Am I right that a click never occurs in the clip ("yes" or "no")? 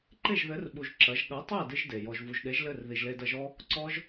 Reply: no